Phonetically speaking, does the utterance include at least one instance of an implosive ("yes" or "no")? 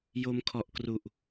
no